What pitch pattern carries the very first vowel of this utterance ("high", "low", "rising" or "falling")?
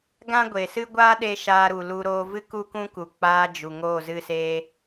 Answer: high